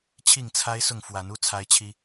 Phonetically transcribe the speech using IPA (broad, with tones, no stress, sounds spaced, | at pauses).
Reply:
t͡ɕʰ i˥˨ ŋ t͡sʰ a˦ ɪ̯ s ʊ˥˨ ŋ f w a˨˦ n u˦ t͡sʰ a˦ ɪ̯ t͡ɕʰ i˦